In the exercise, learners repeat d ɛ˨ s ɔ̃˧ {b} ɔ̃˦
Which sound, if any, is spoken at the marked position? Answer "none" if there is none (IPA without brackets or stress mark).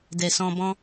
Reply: b